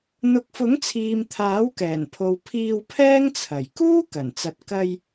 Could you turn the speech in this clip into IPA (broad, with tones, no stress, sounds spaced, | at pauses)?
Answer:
n̪ ʊ˨˥ k̚ f ʊ˨˥ ŋ t͡sʰ iː˨ m t̪ʰ aː˨˥ w k ɛː˨˩ n pʰ o˨ w pʰ iː˧ w pʰ ɛː˥ ŋ t͡sʰ ɐ˨˩ j k uː˥ k ɐ˨˩ n t͡s ɐ˨ t̚ k ɐ˧ j